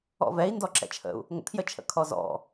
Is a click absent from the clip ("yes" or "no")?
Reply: no